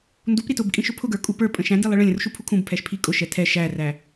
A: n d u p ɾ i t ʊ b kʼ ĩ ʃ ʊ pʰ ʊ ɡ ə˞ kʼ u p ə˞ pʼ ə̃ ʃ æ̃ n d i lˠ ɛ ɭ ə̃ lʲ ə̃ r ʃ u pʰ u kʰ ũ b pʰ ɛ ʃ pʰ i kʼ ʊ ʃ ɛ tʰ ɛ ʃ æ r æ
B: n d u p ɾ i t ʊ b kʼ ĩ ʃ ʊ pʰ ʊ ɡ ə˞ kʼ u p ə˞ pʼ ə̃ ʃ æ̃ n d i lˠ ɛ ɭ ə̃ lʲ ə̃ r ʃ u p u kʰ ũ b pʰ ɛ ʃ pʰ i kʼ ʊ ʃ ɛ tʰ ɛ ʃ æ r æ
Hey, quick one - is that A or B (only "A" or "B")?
A